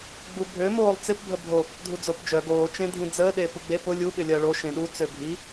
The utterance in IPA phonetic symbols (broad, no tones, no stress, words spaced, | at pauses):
ɡ͡bubʱø moːlˠt͡sɪp bʱəbʱo | dʱud͡zopd͡ʒœ ɡoː t͡ʃẽdʱĩd͡zəː ɗepuɡ͡be pʊ lʲu ɓɪlʲɐːɭo ʃẽɗu t͡søbʱi